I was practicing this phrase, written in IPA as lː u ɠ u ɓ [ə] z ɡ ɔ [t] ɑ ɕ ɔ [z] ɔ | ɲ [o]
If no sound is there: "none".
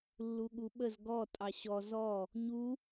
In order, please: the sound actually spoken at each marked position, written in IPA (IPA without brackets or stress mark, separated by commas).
ə, tʼ, z, u